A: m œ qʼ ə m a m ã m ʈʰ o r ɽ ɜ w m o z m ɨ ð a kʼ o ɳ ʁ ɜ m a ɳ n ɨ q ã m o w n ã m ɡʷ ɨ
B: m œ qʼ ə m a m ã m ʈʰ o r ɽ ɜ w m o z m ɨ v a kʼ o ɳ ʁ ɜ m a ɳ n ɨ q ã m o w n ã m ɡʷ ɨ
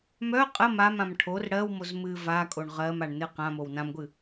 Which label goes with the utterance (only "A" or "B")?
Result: B